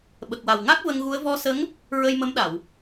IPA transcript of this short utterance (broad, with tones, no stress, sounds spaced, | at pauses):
ɓ ə˨˩ k̚ w a˨˩ w ŋ a˦˥ k̚ v ə˧ ŋ ɣ u˧˥ ə̯ v ɔ˧˥ s ə˧˥ ŋ | ɹ ə˧ j m ə˧˥ m ɗ a˨˩˨ w